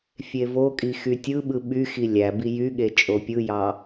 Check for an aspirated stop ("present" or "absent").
absent